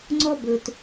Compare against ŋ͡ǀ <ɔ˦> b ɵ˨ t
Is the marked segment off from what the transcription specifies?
no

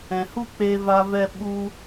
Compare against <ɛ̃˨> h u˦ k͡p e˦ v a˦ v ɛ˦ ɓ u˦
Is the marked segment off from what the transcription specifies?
no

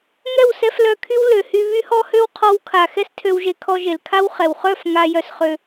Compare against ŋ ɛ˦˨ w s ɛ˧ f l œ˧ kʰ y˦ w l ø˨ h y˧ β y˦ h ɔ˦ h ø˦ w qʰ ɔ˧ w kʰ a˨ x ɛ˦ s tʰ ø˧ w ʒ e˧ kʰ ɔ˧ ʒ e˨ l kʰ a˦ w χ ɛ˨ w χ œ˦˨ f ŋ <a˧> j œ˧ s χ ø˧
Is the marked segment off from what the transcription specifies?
no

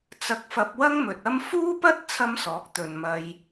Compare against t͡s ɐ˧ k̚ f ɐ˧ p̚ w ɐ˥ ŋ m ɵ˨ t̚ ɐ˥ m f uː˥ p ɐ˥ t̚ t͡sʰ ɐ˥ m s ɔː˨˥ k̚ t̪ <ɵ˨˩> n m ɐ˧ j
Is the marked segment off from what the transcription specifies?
yes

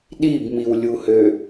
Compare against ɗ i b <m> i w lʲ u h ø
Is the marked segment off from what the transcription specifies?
no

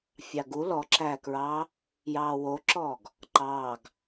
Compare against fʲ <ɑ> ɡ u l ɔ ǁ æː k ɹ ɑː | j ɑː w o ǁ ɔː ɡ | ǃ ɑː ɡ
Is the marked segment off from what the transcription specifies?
no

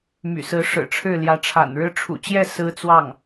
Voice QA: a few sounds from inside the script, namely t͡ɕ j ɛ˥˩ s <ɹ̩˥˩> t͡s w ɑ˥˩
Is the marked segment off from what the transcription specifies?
yes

